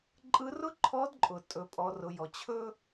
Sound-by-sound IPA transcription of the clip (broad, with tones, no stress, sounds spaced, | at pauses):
ǃʼ ɯ˧˥ r ʊ˥ ǃʰ ɔ˧˥ d ǃʼ ʊ˩ tʼ ɵ˩˧ pʼ ɔ˩˧ r ʊ˩˧ j ɔ˩ t͡ɕʰ ɵ˥